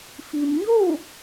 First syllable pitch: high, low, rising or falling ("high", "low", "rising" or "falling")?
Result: low